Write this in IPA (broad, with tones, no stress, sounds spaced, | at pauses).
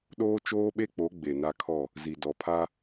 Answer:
ɗ oː˦ t͡ʃ oː˦ ɓ e˦ k͡p o˨˦ ɡ͡b e˨ n a˦ kʰ ɔ˦˨ | z i˨ d ɔ˨ pʰ a˦